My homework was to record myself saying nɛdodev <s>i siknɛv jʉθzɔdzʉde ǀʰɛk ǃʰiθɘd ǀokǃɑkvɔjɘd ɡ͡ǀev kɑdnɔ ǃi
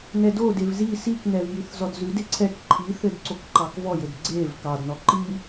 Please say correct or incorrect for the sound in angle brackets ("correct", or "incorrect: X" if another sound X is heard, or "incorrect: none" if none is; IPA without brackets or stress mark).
incorrect: z